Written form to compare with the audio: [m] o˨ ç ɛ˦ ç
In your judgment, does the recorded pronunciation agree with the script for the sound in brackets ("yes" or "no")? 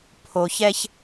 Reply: no